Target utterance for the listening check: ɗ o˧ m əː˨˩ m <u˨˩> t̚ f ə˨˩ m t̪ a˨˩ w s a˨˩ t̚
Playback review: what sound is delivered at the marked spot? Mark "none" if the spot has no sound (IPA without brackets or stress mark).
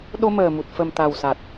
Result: u˨˩